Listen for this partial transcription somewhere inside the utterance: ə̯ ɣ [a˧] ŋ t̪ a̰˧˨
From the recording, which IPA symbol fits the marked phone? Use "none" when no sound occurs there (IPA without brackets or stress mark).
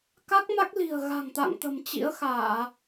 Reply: a̤˨˩